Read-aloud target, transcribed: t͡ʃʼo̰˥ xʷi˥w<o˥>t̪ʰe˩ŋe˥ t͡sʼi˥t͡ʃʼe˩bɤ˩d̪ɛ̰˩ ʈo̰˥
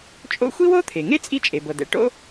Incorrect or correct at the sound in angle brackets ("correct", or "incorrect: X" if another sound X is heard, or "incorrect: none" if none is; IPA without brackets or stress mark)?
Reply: correct